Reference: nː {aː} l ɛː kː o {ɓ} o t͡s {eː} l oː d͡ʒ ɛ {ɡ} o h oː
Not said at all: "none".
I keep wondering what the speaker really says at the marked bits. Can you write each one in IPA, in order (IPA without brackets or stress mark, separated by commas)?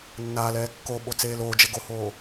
aː, ɓ, eː, ɡ